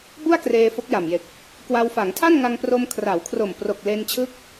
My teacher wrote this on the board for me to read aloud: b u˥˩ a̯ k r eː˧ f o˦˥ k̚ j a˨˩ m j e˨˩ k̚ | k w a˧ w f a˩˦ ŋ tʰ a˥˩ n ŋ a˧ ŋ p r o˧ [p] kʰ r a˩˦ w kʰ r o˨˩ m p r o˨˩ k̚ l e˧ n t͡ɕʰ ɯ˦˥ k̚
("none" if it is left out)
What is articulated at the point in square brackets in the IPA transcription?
m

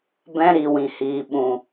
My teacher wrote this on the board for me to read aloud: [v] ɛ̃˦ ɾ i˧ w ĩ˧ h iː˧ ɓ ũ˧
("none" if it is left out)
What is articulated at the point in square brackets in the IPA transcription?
b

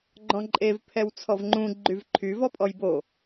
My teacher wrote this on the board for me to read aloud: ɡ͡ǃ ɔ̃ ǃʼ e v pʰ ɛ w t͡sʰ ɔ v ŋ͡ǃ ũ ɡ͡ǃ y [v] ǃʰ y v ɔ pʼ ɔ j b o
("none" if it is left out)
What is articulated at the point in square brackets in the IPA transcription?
v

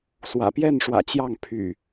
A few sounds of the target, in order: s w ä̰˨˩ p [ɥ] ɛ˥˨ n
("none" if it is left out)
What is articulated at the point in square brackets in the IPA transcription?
j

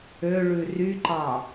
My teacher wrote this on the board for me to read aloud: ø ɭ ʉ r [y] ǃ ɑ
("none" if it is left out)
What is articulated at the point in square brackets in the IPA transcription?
y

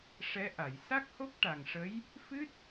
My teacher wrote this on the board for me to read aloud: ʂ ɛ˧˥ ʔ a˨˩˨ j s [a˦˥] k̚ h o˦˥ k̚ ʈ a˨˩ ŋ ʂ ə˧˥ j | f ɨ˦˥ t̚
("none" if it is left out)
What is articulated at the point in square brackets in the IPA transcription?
a˦˥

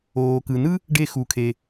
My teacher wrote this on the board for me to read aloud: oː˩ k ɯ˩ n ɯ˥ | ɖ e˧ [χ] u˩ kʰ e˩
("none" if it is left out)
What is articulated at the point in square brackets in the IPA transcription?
x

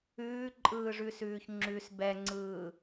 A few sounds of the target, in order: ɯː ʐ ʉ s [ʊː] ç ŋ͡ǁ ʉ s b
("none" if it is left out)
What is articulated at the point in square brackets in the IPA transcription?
ʉː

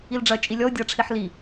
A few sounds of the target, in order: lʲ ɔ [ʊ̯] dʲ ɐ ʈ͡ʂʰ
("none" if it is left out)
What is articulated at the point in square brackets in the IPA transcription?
ʊ̯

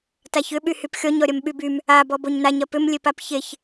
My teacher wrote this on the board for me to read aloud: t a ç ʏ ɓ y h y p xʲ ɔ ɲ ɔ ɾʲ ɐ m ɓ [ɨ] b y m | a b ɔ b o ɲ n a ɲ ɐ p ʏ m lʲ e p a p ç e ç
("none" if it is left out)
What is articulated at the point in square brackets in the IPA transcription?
y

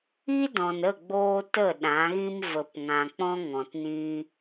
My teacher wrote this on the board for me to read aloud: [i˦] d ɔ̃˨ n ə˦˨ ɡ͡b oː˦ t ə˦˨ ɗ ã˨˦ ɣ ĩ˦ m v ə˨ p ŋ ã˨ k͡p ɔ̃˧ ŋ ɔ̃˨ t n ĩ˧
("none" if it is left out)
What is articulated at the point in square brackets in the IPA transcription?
i˦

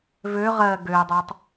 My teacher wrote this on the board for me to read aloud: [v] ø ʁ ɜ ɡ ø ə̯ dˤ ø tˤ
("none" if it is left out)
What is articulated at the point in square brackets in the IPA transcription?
v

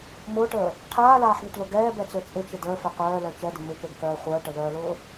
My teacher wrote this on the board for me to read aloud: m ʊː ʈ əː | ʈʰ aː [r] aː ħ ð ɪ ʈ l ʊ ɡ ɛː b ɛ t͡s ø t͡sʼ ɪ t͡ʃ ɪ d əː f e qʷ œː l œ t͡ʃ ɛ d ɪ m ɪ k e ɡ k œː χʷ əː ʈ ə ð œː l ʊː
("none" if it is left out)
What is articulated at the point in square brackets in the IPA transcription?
l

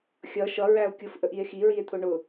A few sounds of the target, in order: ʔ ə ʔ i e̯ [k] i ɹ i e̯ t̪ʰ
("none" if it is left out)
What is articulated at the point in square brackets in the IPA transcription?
x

